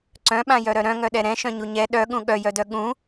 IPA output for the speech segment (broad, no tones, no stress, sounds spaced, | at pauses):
ǀ œ̃ ɓ ã j œ ɾ œ ɾ œ̃ ŋ œ ɗ ɛ ɾ ɛ̃ ʃ œ̃ ɲ u ɲ ɛ ɗ œ ɠ ũ ɠ œ j œ d œ ɠ ũ